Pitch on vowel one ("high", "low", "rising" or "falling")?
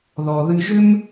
low